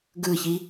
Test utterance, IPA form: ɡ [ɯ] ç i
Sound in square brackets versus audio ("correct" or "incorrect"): correct